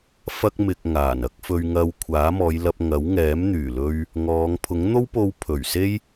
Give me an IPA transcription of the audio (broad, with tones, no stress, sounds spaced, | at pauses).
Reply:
f ɐ˧ k̚ m ɪ˧ k̚ ŋ aː˨˩ n ɐ˥ k̚ f ɵ˧ ɥ ŋ ɐ˧ w kʷʰ aː˨˥ m ɔː˨˧ j l ɐ˧ p̚ ŋ ɐ˨˥ w ŋ ɛː˨˥ m n̪ yː˨˩ l ɵ˧ ɥ | ŋ ɔː˨˧ ŋ pʰ ʊ˨˥ ŋ n̪ o˥ w p o˧ w pʰ ɵ˨˩ ɥ s e˥ j